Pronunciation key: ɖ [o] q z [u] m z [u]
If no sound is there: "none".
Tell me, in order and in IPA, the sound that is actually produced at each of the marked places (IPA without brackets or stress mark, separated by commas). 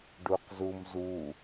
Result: u, u, u